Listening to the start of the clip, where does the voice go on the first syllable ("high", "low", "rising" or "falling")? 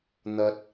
low